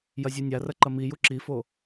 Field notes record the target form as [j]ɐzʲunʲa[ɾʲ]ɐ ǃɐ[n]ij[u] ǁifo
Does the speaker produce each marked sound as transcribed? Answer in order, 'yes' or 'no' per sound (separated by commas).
yes, no, no, yes